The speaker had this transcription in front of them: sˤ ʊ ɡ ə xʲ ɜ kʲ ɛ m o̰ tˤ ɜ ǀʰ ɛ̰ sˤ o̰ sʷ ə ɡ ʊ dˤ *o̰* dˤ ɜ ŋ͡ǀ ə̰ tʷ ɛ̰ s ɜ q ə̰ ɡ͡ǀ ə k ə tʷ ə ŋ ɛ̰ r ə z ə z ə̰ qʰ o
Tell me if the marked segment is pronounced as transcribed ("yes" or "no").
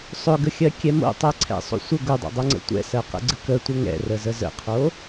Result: yes